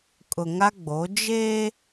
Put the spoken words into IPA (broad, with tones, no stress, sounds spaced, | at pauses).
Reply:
kʼ ʊ˨ ŋ a˦ ɡ͡b o˨˦ d͡ʒ eː˦